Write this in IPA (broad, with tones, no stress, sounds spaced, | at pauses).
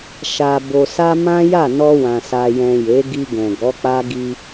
ʃ a˨ b o˨ s a˧ m ã˦ j a˦˨ n ɔ˧ w ã˨ s a˨ j ɛ̃˨ j e˨˦ ɡ i˧ ɡ ɛ̃˨ ɡ ɔ˨˦ k͡p a˦ ɡ i˧